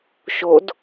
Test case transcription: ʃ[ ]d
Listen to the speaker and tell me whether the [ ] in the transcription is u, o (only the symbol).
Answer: o